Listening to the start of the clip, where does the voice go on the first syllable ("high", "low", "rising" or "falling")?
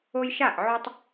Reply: high